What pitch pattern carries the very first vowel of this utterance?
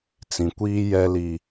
low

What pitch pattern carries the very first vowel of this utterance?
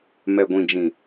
low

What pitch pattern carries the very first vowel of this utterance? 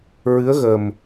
rising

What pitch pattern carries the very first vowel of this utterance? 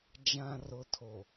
low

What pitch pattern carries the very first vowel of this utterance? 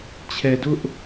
low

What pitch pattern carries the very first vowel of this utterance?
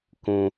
low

